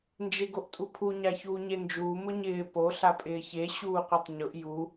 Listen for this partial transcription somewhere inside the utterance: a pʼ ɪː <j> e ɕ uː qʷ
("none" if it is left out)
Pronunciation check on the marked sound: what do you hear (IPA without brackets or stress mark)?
ç